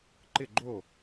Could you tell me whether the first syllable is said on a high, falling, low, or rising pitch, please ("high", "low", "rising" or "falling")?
falling